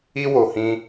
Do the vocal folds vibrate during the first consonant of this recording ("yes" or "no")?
yes